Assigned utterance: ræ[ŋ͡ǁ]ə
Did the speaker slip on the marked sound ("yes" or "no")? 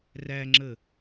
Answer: no